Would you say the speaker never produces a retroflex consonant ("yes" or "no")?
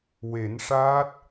no